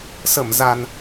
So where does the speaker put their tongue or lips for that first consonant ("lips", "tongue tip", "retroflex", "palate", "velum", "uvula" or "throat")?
tongue tip